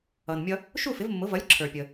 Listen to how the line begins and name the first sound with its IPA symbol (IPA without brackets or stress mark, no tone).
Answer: ʌ